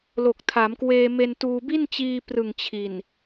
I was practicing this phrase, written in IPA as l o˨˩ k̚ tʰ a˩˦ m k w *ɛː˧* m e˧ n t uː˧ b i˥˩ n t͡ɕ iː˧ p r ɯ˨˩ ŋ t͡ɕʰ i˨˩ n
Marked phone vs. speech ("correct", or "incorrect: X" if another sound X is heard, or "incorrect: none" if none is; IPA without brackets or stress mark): incorrect: eː˧